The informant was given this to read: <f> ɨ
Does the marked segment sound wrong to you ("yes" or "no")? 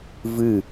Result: yes